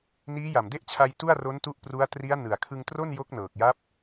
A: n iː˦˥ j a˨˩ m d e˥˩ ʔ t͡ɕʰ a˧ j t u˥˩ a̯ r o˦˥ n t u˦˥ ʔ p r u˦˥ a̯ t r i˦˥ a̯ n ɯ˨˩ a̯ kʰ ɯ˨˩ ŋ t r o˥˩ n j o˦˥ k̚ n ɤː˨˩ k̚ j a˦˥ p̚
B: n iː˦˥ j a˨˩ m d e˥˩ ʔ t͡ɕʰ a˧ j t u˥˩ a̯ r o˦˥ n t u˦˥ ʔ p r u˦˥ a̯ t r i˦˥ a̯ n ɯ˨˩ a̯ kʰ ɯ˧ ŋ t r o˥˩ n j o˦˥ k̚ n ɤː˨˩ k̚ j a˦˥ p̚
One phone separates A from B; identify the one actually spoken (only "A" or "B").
B